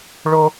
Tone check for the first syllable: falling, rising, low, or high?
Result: high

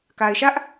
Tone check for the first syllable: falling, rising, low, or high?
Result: low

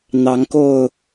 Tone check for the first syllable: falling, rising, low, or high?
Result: rising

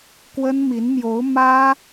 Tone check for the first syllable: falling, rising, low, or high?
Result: high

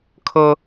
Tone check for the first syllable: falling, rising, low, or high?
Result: high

